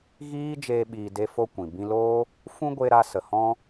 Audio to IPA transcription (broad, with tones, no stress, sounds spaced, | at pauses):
ɣ iː˦ d͡ʒ eː˦ ɓ iː˧ d e˦ f o˦ kʷ ĩ˨ b ĩ˧ l oː˦ | f ũ˦ ɡʷ e˧ ɾ a˧ s ə˨ h ɔ̃˦